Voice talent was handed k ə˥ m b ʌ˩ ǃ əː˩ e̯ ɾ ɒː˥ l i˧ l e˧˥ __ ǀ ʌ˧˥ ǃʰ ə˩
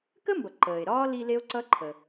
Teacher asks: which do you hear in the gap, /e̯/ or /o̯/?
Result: o̯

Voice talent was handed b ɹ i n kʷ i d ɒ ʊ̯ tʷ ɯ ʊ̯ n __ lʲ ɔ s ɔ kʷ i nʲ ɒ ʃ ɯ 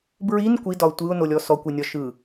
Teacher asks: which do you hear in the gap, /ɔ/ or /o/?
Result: o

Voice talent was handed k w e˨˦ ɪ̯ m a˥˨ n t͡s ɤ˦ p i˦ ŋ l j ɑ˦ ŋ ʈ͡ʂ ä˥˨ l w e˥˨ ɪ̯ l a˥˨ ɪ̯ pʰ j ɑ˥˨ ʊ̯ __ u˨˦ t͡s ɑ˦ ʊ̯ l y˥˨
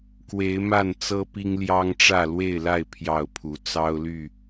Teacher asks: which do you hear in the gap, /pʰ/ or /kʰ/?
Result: pʰ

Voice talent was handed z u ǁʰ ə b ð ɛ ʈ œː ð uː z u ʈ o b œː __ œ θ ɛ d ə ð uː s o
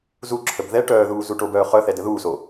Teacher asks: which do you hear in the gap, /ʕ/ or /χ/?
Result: χ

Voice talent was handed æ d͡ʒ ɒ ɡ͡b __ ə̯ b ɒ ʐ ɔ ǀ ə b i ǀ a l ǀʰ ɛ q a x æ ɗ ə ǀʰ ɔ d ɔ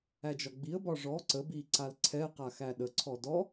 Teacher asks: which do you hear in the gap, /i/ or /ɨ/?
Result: i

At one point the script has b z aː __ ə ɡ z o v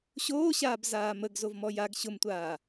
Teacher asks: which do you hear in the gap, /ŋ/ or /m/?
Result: m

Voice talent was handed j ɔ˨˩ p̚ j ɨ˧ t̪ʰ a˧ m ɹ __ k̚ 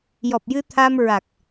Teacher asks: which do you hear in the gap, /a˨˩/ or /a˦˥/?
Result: a˨˩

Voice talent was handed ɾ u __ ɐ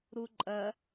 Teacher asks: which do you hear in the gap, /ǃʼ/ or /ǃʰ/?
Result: ǃʼ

